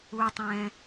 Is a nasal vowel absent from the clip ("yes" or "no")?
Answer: no